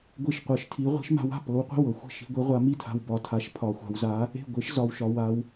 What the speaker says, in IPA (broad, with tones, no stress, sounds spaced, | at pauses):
ɡʷ i˥˩ ʃ qʷ ɤ˧˥ ʃ tʰ i˧˥ ʁʷ i̤˧˥ ʃ m a̤˧˥ w a̤˥˩ p ɤ˧˥ w qʷ i̤˥˩ w ɤ˧ xʷ i̤˥˩ ʃ i̤˧˥ ɡʷ e˧˥ ʁʷ a˧˥ m i˥˩ tʰ a̤˧ w b ɒ˧ tʰ a˧˥ ʃ pʰ ɒ˧ xʷ a̤˧ w z a˧˥ | e̤˥˩ ɡʷ e˧˥ ʃ z ɒ˧ w ʃ ɒ˧ w a˧ w